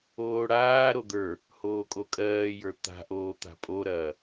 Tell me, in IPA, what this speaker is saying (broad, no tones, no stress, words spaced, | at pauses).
oːɽaːɾo d̪ə˞ | hoːkʼokʼɜːjə˞ t̪a̤ʔoː t̪a̤pʼoɾɐː